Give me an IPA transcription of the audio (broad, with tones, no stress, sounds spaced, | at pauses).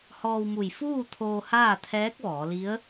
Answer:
h ɔː˧ w m u˧˩ j f uː˥˨ t̪ʰ oː˧ h aː˥˨ t̪ʰ ɛː˧˥ k̚ ʋ ɔː˩˧ l i˧˥ ə̯